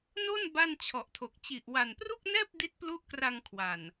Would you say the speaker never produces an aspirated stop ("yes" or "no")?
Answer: no